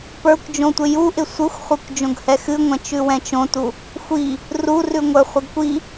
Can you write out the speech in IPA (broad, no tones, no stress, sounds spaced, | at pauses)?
p ə˞ kʷ d͡ʒ õ tʷ ɪ j u ʔ ɪ sʷ ɨ xʷ χʷ ɨ kʷ d͡ʒ õ ɡ h ɛ x ɨ ŋʷ ɛ̃ t͡ʃ ʉ w ɛ̃ t͡ʃ õ t u | xʷ i | r u r ʉ ŋʷ ə˞ χʷ ɪ ɡ kʷ i